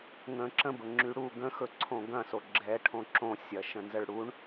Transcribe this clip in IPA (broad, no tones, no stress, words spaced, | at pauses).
ŋə̃ ǁə̃bəŋ͡ǁy ɽu ɡə̃xɵǀʰõ ɡɐ̃so ɡ͡ǁɛʈʰõ ǁõsʲɐʃə̃nzəɭ ɽuɳ